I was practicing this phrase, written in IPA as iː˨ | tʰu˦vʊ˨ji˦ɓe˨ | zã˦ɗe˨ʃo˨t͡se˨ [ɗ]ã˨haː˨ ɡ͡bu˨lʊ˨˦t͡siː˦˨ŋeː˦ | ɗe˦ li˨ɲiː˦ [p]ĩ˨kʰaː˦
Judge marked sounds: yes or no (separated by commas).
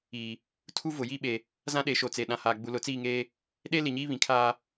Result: yes, no